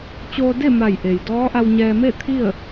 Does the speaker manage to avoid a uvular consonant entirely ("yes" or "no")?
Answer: yes